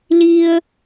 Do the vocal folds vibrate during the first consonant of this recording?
yes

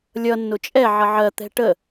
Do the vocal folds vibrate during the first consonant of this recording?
yes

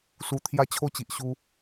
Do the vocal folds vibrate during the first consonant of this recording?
no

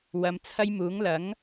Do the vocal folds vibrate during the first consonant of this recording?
yes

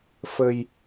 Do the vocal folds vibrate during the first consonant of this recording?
no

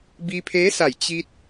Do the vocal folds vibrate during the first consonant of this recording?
yes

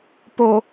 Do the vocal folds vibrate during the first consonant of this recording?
no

